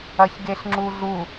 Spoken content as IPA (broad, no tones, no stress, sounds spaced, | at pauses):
ɐ ç ɡ e ɬ ŋ͡ǁ u ɮ u